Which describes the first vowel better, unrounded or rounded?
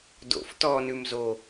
rounded